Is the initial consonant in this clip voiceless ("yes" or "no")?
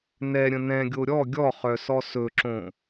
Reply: no